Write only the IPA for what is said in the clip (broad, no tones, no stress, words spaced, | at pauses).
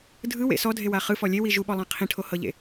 dʱɯwḛ sɔdʱewa χɯfɔ lʲewi ʒuɓɔlˠã qʰĩʈʰohɤʎḛ